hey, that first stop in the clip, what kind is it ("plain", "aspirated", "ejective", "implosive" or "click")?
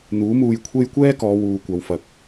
aspirated